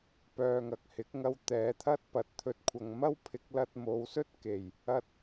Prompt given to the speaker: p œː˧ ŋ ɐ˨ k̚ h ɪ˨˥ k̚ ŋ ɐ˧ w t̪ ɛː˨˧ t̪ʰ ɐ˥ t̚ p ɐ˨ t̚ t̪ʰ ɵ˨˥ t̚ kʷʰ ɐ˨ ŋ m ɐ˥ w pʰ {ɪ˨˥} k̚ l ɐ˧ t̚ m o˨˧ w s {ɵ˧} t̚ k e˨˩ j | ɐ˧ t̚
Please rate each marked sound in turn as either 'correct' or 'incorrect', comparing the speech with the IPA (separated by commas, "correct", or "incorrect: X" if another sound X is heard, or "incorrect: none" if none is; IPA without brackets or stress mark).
correct, incorrect: ɵ˥